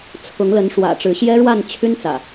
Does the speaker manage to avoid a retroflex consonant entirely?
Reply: no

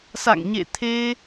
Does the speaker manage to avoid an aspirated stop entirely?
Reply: no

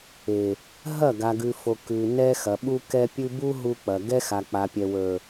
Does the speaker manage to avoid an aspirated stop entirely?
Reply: yes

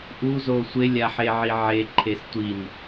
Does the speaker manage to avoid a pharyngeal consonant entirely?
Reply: no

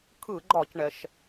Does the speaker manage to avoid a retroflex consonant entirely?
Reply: no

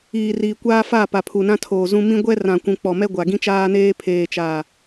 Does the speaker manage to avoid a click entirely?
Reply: yes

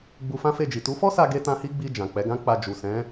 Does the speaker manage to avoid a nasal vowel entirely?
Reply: no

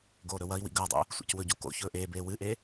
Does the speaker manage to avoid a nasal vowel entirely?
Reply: yes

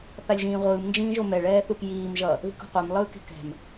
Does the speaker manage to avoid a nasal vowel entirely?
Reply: no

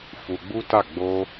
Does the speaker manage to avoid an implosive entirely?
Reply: yes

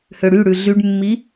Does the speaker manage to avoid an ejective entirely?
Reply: yes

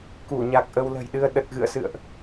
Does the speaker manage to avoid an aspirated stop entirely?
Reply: yes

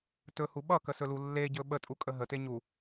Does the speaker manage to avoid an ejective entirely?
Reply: no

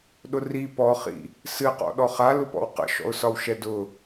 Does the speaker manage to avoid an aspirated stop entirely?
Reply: yes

